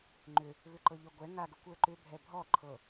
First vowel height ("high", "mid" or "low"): high